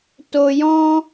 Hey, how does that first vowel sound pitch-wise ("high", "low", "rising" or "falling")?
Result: low